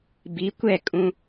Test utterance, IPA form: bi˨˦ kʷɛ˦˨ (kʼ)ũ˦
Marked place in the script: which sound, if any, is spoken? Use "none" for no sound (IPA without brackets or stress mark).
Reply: kʼ